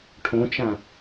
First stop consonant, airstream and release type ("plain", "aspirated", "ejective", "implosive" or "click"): aspirated